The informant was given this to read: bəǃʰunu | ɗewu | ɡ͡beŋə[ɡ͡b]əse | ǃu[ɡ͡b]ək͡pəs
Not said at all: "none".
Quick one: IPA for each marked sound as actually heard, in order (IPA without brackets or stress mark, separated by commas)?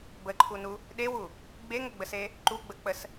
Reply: ɡ͡b, ɡ͡b